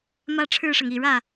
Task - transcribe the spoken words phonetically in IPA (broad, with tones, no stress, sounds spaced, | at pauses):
m ä˥˧ ʈ͡ʂʰ ɻ̩˥˩ ʂ ɤ˩ ŋ i˨˩ ɻ ä˥˩